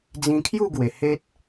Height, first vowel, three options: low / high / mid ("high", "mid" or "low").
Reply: high